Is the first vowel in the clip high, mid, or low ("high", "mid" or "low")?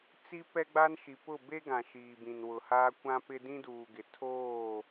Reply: high